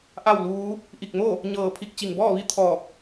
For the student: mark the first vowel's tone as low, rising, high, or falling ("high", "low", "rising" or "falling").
falling